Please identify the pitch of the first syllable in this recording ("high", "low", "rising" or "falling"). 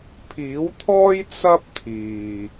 rising